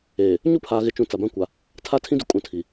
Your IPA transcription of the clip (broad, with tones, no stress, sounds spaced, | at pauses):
eː˨ | ɲ u˦ pʰ aː˨ ɣ ɪ˨ t͡ʃ ũ˨ t͡s a˨ b ã˦ kʷ a˨ | tʰ a˦ tʰ ĩ˦ d u˨ kʼ ũ˨ tʰ i˨